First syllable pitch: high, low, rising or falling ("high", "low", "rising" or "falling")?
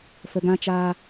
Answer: low